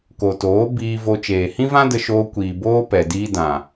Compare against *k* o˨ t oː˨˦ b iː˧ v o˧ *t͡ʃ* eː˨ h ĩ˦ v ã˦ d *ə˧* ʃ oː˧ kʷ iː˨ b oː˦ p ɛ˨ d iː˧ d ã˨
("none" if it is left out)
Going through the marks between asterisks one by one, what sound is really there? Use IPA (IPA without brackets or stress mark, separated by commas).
k, t͡ʃ, ə˧